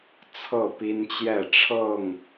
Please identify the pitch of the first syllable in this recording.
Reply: falling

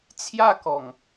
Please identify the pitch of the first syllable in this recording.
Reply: falling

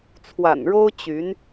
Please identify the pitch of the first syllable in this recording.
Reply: low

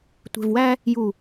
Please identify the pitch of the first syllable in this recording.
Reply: low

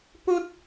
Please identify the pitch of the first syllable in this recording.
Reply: high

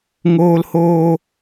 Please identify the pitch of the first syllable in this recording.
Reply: high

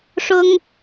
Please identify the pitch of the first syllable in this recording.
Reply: high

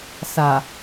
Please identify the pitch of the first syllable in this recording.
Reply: low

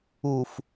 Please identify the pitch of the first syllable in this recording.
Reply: low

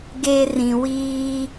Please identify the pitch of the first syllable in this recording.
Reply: high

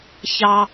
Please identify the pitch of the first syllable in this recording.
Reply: high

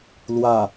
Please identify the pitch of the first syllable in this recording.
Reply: low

